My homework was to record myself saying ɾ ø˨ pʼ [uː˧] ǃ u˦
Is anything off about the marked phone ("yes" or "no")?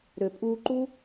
no